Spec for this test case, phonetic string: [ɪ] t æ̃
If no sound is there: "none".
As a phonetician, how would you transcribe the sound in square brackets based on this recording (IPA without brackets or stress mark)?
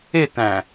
ɪ